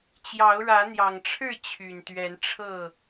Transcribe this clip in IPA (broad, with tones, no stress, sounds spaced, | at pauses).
t͡ɕ j ɑ˨˦ ʊ̯ ɻ ä˨˦ n̪ j ɑ˨˩ ŋ ʈ͡ʂʰ ɻ̩˥˨ t͡ɕʰ y˨˩ n t̪ ɥ ɛ˨˦ n ʈ͡ʂʰ ɤ˥˨